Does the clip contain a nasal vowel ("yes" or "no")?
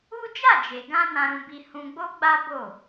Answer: yes